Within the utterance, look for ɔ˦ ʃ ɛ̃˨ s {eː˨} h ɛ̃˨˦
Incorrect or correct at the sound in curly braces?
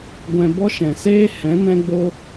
incorrect: eː˦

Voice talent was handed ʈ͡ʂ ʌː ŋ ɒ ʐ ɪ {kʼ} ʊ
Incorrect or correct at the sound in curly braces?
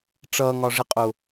incorrect: qʼ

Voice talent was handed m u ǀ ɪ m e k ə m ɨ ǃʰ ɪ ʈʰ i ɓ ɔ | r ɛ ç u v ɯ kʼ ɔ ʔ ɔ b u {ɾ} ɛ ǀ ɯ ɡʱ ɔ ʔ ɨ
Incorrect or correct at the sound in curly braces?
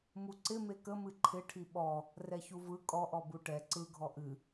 incorrect: ʈ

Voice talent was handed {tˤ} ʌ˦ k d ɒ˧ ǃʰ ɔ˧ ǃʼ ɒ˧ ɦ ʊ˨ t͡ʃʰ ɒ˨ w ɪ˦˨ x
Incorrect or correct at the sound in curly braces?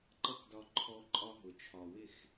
incorrect: ǃ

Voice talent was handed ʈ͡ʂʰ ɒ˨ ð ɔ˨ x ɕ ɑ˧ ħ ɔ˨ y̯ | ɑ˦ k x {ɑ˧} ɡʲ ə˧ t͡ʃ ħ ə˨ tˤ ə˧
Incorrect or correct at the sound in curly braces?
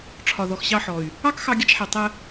correct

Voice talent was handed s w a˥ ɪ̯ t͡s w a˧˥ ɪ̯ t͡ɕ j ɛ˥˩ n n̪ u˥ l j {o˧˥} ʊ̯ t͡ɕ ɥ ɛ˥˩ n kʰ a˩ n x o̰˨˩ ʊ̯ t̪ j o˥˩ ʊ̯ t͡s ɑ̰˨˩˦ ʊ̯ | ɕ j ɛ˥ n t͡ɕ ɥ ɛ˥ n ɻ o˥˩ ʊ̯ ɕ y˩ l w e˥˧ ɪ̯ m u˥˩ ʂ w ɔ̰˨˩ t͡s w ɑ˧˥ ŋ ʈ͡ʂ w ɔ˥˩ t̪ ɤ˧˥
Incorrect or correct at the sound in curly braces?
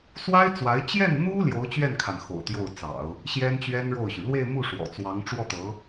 correct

